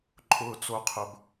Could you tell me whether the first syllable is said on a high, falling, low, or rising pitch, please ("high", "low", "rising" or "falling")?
low